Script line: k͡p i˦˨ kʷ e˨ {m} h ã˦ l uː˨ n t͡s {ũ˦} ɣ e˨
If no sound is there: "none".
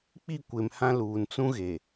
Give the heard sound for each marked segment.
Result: m, ũ˦

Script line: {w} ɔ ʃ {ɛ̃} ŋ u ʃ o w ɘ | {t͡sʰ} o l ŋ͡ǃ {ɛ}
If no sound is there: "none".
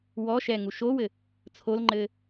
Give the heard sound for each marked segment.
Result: w, ɛ, t͡sʰ, ɘ

